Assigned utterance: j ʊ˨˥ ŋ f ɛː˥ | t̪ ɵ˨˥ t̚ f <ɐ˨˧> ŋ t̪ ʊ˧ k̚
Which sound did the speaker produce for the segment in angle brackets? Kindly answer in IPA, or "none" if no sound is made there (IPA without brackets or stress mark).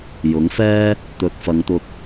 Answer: ɐ˨˧